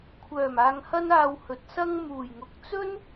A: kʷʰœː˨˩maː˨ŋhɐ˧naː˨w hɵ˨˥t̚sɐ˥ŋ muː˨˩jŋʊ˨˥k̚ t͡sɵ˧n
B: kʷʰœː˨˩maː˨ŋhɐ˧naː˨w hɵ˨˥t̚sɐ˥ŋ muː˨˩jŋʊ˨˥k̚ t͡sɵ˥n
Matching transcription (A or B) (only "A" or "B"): B